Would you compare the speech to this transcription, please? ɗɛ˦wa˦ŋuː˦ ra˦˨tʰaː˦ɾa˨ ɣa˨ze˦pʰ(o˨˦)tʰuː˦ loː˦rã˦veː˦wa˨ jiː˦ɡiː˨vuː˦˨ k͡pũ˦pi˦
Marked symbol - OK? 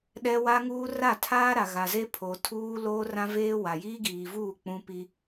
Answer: no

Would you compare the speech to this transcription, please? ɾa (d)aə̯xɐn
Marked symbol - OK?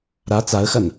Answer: no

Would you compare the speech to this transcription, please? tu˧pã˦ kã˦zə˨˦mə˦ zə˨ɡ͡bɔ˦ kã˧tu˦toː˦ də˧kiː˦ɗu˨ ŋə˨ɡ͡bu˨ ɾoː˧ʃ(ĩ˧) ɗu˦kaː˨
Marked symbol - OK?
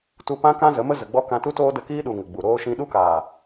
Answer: yes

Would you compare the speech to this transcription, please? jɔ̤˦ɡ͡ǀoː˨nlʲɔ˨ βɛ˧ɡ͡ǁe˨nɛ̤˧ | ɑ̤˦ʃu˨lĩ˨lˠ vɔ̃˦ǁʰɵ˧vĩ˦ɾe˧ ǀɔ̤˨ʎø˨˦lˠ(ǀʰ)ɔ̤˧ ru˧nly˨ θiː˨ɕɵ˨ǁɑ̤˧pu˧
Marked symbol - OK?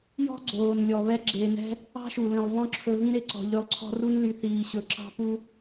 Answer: yes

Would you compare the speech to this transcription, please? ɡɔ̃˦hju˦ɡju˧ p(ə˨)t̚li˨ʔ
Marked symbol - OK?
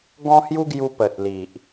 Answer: yes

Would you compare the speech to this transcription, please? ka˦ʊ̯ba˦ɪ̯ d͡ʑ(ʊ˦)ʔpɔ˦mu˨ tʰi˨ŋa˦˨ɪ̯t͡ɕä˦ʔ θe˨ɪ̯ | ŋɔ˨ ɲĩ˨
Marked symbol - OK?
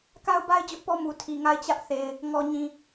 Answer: yes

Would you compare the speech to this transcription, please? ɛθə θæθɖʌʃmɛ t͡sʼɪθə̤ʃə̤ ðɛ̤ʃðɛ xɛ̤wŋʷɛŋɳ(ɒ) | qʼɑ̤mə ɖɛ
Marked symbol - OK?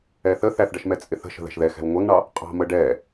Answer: no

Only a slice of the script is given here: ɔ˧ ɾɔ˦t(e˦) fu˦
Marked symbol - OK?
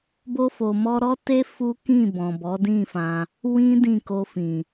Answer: yes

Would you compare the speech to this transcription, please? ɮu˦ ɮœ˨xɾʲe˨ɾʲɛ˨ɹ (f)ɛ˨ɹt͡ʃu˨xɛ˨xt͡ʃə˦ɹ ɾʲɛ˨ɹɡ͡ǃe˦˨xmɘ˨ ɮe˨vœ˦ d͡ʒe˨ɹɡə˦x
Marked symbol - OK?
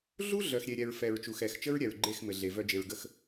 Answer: yes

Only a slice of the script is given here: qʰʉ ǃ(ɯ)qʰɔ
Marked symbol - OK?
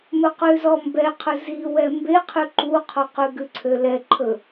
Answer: no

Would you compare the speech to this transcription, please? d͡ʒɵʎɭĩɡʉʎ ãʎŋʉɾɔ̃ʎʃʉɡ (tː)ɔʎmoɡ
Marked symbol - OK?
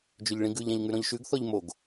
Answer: no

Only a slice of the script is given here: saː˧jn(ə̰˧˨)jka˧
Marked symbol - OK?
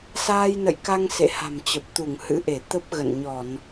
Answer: yes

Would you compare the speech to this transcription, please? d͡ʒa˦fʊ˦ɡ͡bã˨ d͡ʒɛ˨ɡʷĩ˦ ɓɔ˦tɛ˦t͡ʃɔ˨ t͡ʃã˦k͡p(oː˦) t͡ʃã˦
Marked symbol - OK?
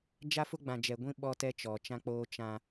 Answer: yes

